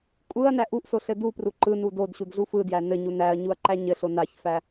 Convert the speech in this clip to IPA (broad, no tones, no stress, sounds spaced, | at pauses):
kʷʼ ɯ ɐ̯ n æ ʔ u ʔ s o ɬ ɘ d u p r u ǃ ɯ n u d o d ɕ u d ɮ u f ɯ d j æ n ɘ ɲ u n æ ɐ̯ ɲ u ɐ̯ ǃ æ ɲ ɘ ɬ o n a ç f æ